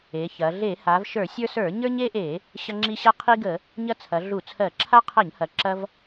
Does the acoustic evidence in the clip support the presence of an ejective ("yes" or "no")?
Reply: no